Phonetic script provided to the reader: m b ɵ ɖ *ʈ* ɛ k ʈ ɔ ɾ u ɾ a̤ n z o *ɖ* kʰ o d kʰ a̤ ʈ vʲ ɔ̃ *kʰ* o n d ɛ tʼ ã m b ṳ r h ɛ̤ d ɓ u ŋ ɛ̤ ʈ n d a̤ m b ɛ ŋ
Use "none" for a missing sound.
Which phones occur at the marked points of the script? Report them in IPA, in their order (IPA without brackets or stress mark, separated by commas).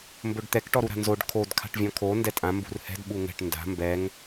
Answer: t̪, ɖ, kʰ